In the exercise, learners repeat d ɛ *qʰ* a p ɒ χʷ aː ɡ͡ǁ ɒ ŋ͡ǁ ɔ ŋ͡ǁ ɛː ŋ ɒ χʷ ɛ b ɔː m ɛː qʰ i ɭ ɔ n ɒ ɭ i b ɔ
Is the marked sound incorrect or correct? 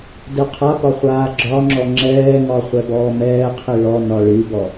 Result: correct